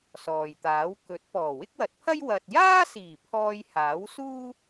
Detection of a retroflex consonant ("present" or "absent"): absent